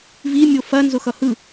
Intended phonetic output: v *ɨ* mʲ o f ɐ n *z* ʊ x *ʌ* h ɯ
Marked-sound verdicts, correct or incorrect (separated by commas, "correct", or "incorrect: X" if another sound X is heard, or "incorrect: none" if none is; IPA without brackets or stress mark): incorrect: i, correct, correct